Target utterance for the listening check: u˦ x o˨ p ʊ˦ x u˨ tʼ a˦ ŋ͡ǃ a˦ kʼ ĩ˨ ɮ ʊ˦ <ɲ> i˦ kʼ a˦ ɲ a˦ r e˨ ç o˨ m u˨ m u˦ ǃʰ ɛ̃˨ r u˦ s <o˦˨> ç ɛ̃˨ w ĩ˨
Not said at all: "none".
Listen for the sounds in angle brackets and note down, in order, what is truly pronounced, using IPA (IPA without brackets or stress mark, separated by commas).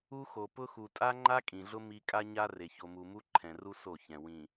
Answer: m, o˦˨